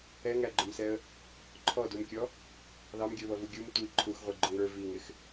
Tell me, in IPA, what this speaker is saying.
ɛŋæɡ͡ǃʊmsɛə̯ | ǃʰɔdumkʲɔ | ðɑmɡʲə˞βʌvu ɡʲum tʷi ǃʰuxʁʷiɡ͡ǃʊŋ ə˞ viŋɪx

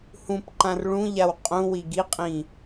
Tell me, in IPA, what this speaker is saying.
hũpǃãr ɭũʎaw qʼũwi ɡiqʼĩ

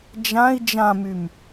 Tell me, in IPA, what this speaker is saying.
d͡ʒãi̯ d͡ʒãmym

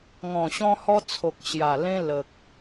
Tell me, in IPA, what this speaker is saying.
ŋɔ̃˨˩ɕɔ̃˧hɔ˧t͡sʰo˨k̚ ɕja˨˩ lẽ˧lə˨k̚

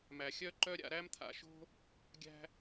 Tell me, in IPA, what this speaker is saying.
mæ˨xʲœ˦ǃœ˦ɾʲa̰˧ ɾæ˧mt̪ʰa̰˨ʃo̤˧ | ɡʲæ̤˧

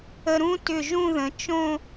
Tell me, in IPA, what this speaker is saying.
ə˧ɾũ˥ tʏ˧˩ ʒũ˥˧ðə̃˩˧ t͡ʃõ˥˧

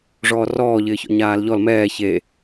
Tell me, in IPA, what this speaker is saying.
ʐɔːrɔːʎɪːçɔ̰ ɲaːlʎɔl mɛː çe

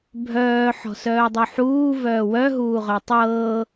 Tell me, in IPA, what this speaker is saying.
bʱœː ħɔ̤sœːdˤuħuː vœːwœɦuːʁœ tˤɤː

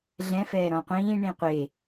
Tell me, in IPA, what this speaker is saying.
ɮɛ̃fɛː ɾɔ̃qʷĩː ɳĩqʷe

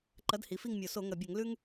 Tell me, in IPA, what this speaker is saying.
ǃɐ˨˥dhi˩˧fi˦˨ŋmʲo˨˩ so˧˩˧ŋɐ˨˩bʲɐ˧˩˧ŋ lʉ˦ŋ

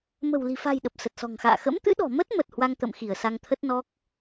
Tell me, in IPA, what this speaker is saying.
mə̤˨˩wli̤˨˩fa̤˨˩jɗə˨˩p̚ sə˨˩t̚sɔ̤˨˩ŋxa̰ː˧˨ xə̰˧˥mt̪ɨ̰˧˥ɗɔ̤˨˩mə˦˥t̚ mə˨˩t̚ hwa˧ŋt̪ə̰˧˨mxi˧˩ə̯ sa˧ŋt̪ʰə˦˥t̚ nɔ˦˥k̚

